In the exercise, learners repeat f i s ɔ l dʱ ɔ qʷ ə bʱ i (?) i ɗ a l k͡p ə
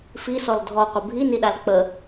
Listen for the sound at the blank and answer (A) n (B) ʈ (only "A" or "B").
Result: A